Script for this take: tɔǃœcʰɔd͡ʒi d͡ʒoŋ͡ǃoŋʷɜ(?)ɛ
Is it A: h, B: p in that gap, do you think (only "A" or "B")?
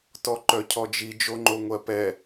B